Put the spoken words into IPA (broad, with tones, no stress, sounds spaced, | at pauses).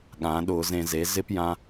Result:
ɠ ã˩˥ ɗ ʊ˧˩˧ z ẽ˧˩˧ z e˩˥ z ɪ˥ p j ã˧